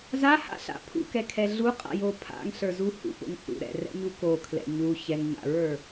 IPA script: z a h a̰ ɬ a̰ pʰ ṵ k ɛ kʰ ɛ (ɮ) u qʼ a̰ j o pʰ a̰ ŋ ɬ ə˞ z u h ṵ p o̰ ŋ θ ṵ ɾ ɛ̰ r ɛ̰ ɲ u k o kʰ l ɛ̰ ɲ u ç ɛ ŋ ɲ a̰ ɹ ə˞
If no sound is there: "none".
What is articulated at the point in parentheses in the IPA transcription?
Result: ɮ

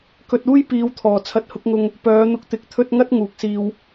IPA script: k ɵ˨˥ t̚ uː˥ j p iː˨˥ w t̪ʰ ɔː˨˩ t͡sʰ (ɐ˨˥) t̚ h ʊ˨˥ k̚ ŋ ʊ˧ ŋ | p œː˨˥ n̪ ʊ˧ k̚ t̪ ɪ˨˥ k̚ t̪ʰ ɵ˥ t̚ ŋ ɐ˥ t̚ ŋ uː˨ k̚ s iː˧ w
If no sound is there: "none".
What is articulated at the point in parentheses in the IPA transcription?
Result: ɐ˨˥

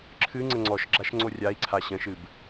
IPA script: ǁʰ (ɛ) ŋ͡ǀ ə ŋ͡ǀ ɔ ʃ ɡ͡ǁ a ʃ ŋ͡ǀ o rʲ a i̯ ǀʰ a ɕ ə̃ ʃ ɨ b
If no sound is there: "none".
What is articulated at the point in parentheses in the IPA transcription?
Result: ɨ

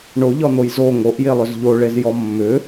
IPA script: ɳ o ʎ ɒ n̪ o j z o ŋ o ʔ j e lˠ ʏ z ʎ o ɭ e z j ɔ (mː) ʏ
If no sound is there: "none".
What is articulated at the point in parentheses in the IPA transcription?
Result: mː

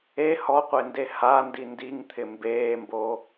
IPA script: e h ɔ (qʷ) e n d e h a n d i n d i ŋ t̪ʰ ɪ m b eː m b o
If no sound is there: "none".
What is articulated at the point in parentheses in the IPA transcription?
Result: qʷ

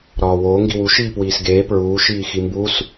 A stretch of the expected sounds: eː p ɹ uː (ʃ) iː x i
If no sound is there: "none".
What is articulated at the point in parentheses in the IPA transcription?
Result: ʃ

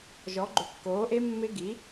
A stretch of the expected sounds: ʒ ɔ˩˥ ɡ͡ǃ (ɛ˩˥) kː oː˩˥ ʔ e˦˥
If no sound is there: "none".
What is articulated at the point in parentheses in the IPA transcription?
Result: ʏ˩˥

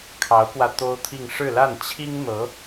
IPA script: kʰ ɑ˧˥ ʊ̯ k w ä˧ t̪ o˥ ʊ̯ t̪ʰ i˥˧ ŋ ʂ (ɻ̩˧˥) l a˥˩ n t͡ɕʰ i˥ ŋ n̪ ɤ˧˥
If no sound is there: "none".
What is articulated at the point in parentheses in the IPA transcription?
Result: ɻ̩˥˧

